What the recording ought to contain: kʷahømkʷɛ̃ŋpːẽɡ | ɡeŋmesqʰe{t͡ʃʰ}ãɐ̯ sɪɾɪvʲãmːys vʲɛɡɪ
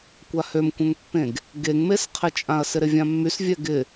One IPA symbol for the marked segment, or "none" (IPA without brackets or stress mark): t͡ʃʼ